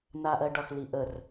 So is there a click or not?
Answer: no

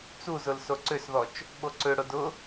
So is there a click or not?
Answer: yes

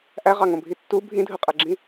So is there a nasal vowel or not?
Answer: yes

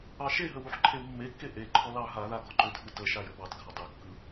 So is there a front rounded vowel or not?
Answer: yes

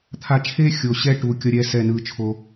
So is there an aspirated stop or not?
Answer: yes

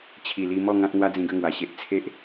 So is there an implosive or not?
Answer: no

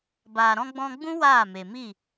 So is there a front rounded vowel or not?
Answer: no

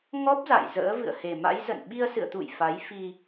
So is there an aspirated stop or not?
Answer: no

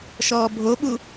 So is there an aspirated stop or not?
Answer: no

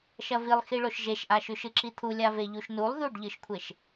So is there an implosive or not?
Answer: no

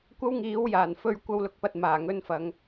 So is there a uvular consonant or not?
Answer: no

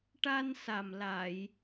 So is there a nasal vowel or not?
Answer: no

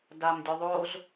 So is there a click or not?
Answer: no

